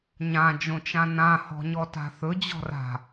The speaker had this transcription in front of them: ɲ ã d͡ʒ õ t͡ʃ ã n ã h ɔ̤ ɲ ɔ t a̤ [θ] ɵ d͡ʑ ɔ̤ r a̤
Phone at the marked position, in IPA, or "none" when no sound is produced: θ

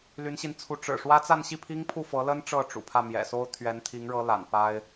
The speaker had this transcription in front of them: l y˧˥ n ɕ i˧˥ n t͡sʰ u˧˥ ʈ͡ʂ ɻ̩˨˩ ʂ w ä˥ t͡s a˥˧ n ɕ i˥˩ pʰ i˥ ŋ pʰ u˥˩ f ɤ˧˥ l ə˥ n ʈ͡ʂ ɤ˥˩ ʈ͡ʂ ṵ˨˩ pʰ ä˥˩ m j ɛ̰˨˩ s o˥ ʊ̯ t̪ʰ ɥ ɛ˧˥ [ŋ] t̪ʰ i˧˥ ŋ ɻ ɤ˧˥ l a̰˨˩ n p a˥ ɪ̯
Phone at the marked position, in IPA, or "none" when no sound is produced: n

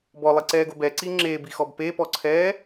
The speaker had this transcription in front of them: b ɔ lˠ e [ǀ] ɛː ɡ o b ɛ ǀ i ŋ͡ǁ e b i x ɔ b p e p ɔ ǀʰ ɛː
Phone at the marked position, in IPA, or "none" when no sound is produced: ǀ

